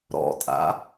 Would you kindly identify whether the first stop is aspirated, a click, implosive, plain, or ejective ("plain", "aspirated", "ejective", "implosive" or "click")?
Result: ejective